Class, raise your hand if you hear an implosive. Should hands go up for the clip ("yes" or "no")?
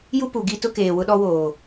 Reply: yes